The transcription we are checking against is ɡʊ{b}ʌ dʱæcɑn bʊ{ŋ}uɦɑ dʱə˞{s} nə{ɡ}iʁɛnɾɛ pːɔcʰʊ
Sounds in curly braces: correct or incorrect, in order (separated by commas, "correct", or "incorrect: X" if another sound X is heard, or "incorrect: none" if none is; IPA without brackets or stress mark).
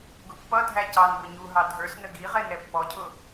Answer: incorrect: pː, incorrect: ɲ, correct, correct